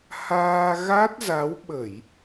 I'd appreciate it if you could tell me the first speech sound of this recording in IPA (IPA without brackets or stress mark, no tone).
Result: h